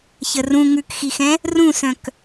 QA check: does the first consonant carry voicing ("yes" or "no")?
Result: no